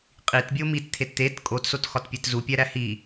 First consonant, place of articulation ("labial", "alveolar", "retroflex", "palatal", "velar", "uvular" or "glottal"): uvular